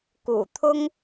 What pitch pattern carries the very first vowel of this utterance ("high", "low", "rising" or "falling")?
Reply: low